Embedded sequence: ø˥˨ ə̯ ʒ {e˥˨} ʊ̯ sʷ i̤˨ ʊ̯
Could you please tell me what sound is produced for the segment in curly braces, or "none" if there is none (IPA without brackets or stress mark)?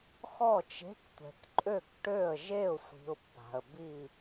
e˥˨